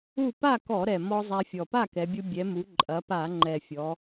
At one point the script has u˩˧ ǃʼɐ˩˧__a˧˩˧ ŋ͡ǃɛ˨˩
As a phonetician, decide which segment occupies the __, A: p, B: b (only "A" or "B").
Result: A